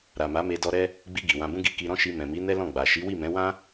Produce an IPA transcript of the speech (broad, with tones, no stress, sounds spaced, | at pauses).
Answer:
ɾ a˨ m a˨˦ m e˧ d ɔ˧ ɾ ɛ˦ | ɡ͡b i˧ ɡ i˨ w ã˧ b ũ˦ ɡ i˦ k i˧ ɾ ɔ̃˦ ʃ i˧ m ɛ̃˨ m i˨˦ n ɛ˦ l ɔ̃˦˨ ɡ͡b a˨ ʃ i˨˦ w i˦˨ m ɛ̃˨˦ w ã˦